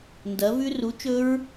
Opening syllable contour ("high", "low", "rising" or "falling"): rising